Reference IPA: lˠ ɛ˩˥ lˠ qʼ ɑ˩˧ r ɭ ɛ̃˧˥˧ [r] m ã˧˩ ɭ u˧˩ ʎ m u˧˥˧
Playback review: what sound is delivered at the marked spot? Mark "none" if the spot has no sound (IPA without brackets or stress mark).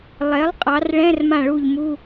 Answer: r